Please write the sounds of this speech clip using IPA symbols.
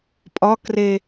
pʼ ɒ k r e

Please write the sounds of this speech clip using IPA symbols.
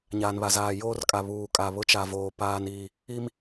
ɲ aː˨ n β a˨ z aː˨ j oː˦ r kʼ a˨ β uː˨ kʼ a˨ β ʊ˦ t͡ʃ a˨ v oː˨ p aː˨ n iː˨ | i˦ m

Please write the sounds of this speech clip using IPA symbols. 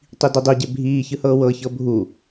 tˤ i d i dˤ i ɟ e bʱ iː ç ɯ h ɤː w ɤ ç ɤ bʱ u

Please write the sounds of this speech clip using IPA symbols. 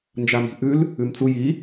n d͡ʒ a m i̤ ʔ ʉ l | ʉ m t͡s u j i

